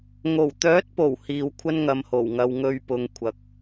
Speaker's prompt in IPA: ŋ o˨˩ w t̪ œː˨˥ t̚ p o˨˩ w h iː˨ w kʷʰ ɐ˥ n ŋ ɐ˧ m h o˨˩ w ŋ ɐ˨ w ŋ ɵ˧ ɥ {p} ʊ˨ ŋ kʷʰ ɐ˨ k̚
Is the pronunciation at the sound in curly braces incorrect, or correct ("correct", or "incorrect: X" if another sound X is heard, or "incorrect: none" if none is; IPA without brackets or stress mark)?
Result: correct